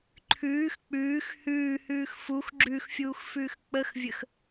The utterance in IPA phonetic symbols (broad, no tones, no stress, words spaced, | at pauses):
ǃʰʉːx k͡pʉːx hʉːhʉːx fux ɡ͡ǁʉxfʲuːxfʉːx k͡pəxvʲəx